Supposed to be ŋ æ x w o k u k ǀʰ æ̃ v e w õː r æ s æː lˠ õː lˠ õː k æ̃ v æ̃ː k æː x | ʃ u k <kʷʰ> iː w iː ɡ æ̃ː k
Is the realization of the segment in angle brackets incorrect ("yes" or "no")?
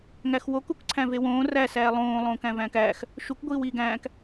yes